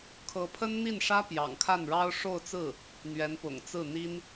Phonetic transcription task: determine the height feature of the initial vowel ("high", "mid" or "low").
mid